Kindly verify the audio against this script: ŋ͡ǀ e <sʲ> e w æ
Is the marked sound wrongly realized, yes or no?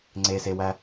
yes